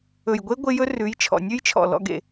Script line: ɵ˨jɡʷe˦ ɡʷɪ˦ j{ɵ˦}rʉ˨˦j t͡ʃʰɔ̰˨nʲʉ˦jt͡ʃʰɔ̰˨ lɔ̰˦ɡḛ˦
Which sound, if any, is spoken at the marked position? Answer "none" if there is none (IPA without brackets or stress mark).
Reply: ɵ˦